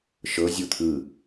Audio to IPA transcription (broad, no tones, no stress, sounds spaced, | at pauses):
ʃ ɤ zʲ u t̪ʰ ɯ